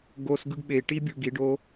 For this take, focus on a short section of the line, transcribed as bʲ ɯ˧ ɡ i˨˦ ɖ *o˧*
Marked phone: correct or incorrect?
incorrect